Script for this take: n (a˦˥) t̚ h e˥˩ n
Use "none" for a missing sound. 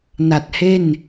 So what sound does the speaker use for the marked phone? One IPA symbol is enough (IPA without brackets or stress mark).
a˨˩